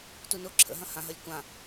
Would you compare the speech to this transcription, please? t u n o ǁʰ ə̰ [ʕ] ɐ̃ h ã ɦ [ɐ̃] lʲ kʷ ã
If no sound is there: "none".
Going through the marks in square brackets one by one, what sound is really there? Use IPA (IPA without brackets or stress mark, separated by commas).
ɦ, ɐ